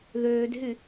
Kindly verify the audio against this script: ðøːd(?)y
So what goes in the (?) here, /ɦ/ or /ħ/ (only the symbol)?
ɦ